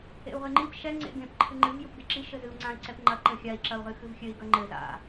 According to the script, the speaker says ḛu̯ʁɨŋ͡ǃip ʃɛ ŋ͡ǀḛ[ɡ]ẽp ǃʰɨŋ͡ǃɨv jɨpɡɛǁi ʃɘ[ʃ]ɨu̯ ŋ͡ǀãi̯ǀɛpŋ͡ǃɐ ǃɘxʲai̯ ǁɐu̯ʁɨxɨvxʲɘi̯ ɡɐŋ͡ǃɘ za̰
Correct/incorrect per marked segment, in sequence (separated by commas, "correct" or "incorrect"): correct, incorrect